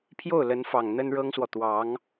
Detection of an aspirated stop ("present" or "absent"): present